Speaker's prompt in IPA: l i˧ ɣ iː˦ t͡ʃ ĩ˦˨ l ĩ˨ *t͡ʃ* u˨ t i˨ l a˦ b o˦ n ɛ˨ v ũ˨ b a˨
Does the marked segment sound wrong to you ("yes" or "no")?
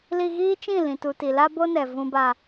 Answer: yes